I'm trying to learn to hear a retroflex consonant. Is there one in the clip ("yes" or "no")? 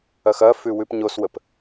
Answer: no